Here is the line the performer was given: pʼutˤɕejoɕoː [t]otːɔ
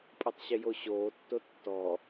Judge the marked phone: incorrect: tː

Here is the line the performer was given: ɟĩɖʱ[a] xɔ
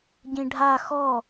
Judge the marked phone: correct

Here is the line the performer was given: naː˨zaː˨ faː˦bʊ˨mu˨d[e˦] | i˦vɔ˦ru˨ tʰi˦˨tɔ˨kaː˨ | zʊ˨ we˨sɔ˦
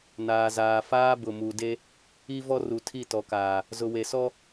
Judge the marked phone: correct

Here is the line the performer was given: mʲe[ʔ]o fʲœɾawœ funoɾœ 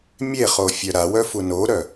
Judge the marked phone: incorrect: χ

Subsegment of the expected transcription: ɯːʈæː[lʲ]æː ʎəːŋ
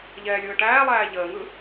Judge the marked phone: incorrect: lˠ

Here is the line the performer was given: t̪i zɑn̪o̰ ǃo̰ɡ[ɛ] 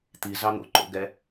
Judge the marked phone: correct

